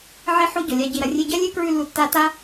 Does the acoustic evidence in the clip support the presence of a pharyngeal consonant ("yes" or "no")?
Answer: yes